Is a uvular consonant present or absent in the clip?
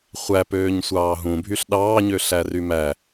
present